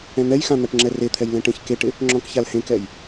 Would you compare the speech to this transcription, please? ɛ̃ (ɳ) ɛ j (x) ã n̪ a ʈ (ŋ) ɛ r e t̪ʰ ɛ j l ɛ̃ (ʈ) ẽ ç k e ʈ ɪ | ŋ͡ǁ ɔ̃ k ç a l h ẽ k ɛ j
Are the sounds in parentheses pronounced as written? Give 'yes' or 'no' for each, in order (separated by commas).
no, yes, no, yes